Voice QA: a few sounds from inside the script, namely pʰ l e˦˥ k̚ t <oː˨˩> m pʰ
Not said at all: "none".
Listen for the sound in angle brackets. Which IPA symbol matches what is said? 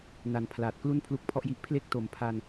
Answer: o˨˩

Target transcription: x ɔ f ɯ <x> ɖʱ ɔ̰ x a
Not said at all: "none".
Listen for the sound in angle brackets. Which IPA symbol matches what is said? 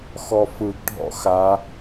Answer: ɡ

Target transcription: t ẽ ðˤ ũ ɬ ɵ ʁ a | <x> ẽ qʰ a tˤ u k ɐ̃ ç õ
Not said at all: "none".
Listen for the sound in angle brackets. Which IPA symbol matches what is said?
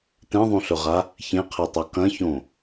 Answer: ç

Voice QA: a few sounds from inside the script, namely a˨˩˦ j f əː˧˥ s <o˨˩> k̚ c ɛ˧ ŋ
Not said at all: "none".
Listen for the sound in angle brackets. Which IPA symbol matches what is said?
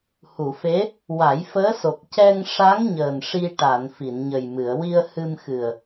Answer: o˨˩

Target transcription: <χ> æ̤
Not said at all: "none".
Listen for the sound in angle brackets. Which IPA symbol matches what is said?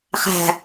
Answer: χ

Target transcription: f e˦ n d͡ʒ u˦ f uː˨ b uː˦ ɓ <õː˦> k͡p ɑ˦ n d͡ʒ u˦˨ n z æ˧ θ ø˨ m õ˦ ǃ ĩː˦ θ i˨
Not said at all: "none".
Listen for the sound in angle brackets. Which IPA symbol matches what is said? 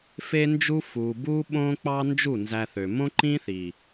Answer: õː˦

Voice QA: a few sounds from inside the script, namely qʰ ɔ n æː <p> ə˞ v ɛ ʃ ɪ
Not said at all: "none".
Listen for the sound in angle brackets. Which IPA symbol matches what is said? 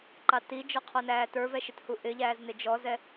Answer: t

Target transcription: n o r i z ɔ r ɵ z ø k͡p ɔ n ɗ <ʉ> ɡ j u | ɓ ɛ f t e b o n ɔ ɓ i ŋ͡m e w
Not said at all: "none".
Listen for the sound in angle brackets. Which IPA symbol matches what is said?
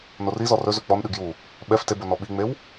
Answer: ʉ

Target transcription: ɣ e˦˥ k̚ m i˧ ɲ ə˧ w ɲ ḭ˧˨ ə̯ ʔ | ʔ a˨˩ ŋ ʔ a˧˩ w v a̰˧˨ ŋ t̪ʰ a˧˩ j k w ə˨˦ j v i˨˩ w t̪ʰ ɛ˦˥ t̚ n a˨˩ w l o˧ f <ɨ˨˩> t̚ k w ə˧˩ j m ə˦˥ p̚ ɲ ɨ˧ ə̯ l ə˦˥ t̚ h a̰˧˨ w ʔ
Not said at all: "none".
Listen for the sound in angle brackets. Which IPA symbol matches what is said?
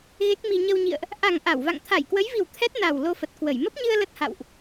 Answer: ə˨˩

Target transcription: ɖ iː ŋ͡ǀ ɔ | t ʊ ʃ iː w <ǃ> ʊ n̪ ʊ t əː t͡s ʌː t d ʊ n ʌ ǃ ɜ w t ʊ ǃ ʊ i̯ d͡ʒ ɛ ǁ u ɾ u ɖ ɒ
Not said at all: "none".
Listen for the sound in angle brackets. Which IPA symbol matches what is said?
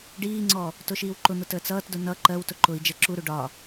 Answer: ǃ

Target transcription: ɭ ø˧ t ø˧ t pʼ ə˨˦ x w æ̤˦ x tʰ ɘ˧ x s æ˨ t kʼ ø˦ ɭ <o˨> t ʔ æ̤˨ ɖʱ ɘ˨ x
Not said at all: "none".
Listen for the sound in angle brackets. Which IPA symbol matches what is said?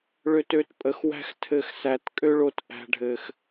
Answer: o˧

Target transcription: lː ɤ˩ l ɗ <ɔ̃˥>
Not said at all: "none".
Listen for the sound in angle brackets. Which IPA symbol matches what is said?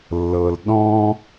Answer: ɔ̃˥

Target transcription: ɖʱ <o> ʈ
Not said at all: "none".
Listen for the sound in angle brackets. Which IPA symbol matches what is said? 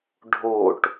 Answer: o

